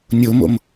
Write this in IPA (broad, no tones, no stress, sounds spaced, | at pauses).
nʲ o m o̰ m